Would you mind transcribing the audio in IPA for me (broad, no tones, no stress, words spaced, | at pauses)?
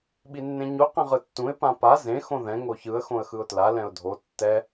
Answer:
ɓinːẽɲu qɛ̃ʁɯtːũɪ̯ pãpa zẽ xõðɛ̃ ŋoçɯə̯ xõə̯xɯʊ̯tla lɛ̃ʊ̯dʱo tːɛ